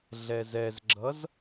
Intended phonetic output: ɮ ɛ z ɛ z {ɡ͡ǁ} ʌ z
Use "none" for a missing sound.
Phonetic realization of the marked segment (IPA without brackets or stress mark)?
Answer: ɡ͡ǁ